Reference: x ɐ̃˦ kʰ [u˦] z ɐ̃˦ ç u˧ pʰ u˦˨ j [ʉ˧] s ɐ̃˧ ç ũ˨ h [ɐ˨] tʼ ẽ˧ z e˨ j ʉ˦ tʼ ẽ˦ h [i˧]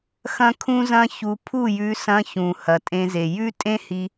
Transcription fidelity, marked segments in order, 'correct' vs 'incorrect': incorrect: ũ˦, correct, correct, correct

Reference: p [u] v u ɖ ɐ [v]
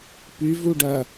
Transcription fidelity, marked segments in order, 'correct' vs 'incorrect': incorrect: y, incorrect: none

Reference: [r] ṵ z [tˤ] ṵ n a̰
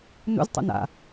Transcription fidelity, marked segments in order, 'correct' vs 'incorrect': incorrect: n, correct

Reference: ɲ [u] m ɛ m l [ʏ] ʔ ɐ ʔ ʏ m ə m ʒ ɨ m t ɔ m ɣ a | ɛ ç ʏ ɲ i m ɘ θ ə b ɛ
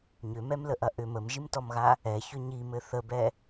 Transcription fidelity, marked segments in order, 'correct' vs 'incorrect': incorrect: ʏ, incorrect: ə

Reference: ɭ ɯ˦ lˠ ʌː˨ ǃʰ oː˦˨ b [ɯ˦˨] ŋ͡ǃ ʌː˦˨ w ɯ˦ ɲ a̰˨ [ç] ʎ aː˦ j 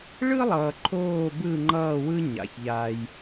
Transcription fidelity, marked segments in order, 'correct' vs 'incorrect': correct, correct

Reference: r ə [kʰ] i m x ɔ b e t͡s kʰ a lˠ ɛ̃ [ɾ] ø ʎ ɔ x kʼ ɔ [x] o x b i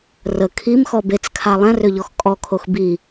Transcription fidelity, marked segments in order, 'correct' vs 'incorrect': correct, incorrect: r, incorrect: kʰ

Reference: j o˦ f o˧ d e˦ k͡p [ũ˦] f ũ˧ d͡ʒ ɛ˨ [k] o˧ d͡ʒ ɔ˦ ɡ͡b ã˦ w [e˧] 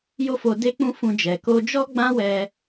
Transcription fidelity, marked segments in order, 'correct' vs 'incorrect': correct, correct, incorrect: ɛ˧

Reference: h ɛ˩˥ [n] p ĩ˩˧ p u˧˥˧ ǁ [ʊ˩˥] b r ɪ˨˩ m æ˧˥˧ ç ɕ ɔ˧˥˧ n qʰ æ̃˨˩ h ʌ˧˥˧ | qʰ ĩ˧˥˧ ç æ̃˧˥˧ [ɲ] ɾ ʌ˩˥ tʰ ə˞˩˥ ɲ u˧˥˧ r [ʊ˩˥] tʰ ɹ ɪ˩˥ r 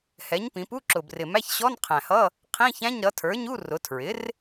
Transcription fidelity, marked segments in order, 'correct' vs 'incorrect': incorrect: ɲ, incorrect: ʊ˨˩, correct, incorrect: ʊ˩˧

